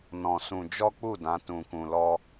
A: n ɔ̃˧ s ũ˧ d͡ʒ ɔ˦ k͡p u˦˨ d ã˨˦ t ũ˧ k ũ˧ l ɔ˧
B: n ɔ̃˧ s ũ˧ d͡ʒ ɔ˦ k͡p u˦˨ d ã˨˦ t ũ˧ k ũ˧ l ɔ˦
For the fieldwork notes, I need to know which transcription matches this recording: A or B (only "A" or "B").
B